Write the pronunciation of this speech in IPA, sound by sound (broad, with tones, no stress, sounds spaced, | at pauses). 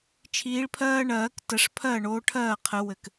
t͡ʃʰ iː˨˦ ɭ pʰ ɜː˦ ɳ ɜː˨˩˦ k t ə˨˩˦ ʂ pʰ ɜ˥˩ ɳ oː˨˦ ʈʰ ɜː˥˩ qʰ ɘ˨˩˦ w ɘ˨˩ k